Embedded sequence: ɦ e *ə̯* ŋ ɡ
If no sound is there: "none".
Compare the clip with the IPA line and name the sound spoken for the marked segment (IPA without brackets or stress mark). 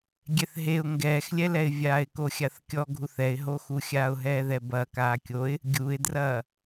ʊ̯